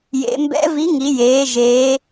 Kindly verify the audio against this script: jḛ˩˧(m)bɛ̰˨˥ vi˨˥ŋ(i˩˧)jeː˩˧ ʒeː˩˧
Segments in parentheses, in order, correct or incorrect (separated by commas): correct, correct